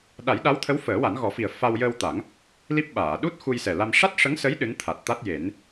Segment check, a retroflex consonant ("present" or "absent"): present